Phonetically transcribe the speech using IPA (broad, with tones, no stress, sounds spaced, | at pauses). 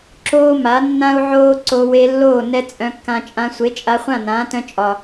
ǁ oː˦ m a˨˦ nː ã˦ u̯ ʕ oː˦ ǀ o˧ w e˧ lː oː˦˨ n ɛ˦ t͡sʼ œ̃˧ kː ã˧ t͡ʃʼ ã˧ sʷ e˨˦ t͡ʃʼ a˧ χʷ ã˦˨ n ãː˨˦ t œ̃˧ t͡ʃʼ ɒ˨